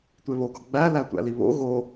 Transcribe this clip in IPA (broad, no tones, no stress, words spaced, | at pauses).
tʷeβoɡɒ ɡ͡bæ lætʷæ̰liβo̰ ɣo